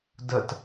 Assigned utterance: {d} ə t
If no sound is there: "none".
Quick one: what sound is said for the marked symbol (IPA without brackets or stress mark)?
d